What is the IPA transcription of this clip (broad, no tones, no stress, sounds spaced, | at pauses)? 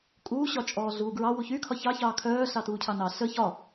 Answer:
kʼ uː ɕ ɒ t͡ʃʼ ɔː ɮ uː ɡ ɹ ɑ w u ç y kʰ ɒ ç ɑ ç ɑː kʰ œː ɬ ɑ t uː cʰ ɑ n ɑ ɬ ə ç ɒ